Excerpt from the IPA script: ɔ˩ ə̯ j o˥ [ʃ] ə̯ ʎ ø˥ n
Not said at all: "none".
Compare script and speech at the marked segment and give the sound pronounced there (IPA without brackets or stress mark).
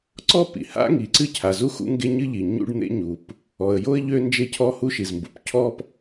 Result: none